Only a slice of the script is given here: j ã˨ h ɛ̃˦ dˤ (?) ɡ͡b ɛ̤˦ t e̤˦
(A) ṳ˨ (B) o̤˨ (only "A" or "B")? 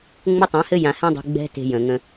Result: A